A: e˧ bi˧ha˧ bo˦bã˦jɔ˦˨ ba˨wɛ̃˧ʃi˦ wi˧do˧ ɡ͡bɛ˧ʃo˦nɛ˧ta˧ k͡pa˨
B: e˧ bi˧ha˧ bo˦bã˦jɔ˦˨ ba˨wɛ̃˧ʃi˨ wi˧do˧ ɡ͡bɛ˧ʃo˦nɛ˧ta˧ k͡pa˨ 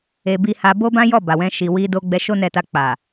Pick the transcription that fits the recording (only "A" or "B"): B